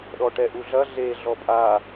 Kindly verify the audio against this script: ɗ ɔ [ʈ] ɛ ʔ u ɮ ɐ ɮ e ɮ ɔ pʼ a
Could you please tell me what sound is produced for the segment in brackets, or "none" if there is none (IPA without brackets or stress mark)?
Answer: ʈ